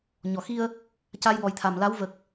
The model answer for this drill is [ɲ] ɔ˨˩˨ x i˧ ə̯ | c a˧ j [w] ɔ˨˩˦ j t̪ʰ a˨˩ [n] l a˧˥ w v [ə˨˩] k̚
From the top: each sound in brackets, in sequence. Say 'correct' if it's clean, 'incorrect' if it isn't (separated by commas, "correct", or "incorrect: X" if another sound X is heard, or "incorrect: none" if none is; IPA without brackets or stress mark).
correct, correct, incorrect: m, correct